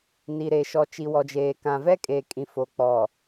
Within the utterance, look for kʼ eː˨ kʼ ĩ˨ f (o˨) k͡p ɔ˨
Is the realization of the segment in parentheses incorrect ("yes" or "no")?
no